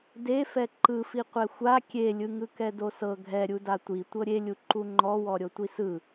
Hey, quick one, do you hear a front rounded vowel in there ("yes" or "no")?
no